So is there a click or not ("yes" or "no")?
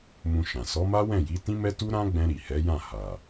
no